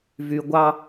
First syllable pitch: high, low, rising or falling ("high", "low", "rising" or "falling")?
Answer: low